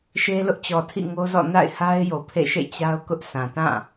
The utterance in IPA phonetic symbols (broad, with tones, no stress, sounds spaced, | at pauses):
ʃ e˦ l ʊ˦ ʔ t͡ɕ ɔ˨ tʰ ḭ˦˨ ŋ o˦ z ɔ̰˦˨ n a̰˦˨ ɪ̯ h a˦ ɪ̯ j o˨ pʰ ḛ˦˨ ʃ ḛ˦˨ t͡ɕ a˦ ʊ̯ k ʊ˦ ʔ s ã˨ t ã˦˨